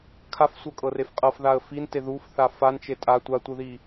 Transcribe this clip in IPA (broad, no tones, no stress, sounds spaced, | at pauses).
kʰ a f sʷ ɤ kʼ ɤ r e f qʼ ɤ f ð a ə̯ f i n t e ð u f θ a f a n t͡ʃ e tʼ a tʷ a tʷ ɯ ð i